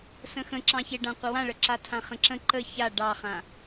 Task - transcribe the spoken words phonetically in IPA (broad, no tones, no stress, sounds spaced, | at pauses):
s ə̃ x ə̃ ǁ ɑ̃ ç e ɖ ã qʷ ə w ã ɭ ə ǁ a tʰ ã χ ə̃ ǁ ə̃ ǃ ə ç a ɖ ɑ χ ã